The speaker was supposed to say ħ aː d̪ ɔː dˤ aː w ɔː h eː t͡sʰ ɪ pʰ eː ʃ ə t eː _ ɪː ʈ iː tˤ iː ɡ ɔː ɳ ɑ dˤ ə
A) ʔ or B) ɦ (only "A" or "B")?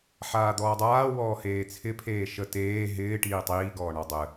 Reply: B